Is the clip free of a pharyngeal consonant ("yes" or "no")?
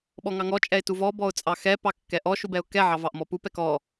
no